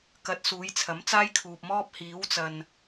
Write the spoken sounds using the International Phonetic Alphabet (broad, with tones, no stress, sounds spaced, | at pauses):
k ɐ˧ t̚ s uː˨˥ j t͡sʰ ɐ˨˥ m t͡s aː˥ j kʰ uː˨ p̚ m ɔː˥ p̚ h iː˨˥ w t͡s ɐ˨ n